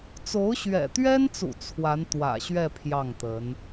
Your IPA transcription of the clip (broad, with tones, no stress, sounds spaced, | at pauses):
t͡s o˧˥ ʊ̯ ɕ ɥ ɛ̰˨˩ t̪ ɥ ɛ˥ n t͡s ṵ˨˩ t͡sʰ w a˧˥ n t̪ w ä̰˨˩ ɕ ɥ ɛ˥˧ pʰ j ɑ˥˩ ŋ t̪ ə˧˥ n